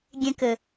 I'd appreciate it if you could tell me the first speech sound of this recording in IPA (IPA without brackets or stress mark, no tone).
ɡʲ